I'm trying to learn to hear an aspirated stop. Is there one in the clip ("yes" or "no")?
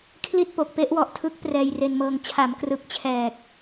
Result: yes